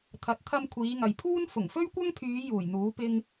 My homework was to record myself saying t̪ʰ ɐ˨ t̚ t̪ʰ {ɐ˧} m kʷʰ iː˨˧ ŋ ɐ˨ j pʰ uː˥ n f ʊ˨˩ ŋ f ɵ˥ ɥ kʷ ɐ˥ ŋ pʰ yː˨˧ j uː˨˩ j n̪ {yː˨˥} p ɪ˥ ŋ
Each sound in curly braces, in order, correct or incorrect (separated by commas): correct, incorrect